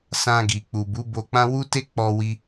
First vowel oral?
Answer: no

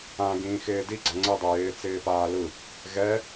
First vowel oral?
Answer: no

